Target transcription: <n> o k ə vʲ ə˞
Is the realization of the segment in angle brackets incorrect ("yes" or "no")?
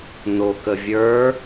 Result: no